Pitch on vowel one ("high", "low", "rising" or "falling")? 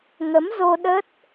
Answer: rising